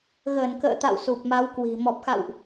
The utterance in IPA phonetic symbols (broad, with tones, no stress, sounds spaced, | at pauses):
ɣ əː˧˩ n k ə̰ː˧˨ t̪ a̰˧˨ w s u˨˩ p̚ m a˨˦ w k w i̤˨˩ m ɔ˨˩ p̚ x a̰˧˨ w ʔ